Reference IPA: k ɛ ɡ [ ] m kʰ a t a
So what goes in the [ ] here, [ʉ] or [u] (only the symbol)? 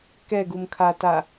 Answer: u